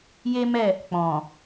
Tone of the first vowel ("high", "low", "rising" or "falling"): high